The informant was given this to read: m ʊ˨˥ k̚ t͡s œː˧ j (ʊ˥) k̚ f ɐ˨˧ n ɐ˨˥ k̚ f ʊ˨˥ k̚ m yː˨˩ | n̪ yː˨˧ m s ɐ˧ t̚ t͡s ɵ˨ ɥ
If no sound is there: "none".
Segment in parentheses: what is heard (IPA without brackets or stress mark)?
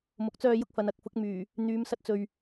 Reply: ʊ˥